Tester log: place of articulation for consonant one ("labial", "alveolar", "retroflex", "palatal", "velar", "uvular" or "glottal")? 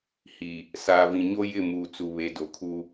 glottal